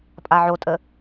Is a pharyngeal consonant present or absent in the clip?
present